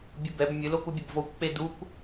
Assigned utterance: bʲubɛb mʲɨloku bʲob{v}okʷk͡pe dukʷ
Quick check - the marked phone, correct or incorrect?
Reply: correct